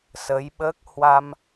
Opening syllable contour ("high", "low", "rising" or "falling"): rising